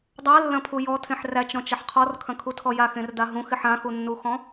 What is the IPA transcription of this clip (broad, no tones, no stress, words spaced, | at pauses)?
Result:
dˤalːɐ̃pʰu jɔtʰẽħ ræt͡ʃɾɔ̃t͡ʃɐħ qʰɔrkʰɐ̃kʰutʰɔ jaxẽrda ɦũxɪħ ãxunːuxɔ̃